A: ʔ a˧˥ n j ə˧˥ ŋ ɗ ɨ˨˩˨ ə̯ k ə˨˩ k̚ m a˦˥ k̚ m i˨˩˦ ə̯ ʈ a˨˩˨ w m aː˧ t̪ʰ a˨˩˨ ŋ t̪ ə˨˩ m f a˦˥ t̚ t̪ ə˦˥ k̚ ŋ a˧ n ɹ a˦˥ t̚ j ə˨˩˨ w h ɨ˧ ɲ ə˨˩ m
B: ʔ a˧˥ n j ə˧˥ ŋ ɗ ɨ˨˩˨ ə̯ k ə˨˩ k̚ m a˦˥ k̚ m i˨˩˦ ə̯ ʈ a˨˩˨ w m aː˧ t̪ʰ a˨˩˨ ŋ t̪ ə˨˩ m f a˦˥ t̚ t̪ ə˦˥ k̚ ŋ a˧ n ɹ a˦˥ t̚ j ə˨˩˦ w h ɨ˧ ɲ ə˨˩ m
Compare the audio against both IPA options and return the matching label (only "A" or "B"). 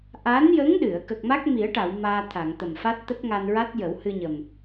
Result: B